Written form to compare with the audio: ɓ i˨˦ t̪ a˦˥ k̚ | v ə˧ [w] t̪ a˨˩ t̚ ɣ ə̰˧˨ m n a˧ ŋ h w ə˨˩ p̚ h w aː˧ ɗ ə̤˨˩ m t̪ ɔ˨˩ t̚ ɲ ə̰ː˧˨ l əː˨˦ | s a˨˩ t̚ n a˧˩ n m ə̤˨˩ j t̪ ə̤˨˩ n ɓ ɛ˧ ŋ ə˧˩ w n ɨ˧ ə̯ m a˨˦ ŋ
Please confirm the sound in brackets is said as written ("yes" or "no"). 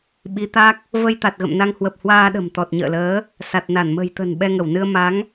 no